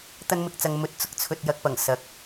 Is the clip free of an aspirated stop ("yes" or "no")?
no